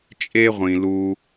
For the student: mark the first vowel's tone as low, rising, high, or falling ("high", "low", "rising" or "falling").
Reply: high